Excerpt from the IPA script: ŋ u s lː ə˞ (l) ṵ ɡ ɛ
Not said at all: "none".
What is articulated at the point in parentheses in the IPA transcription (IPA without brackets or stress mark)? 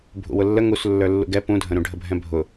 lː